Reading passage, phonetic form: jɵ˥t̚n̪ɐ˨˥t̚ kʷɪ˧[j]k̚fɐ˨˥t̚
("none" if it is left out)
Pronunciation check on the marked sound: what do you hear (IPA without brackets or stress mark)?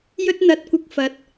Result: none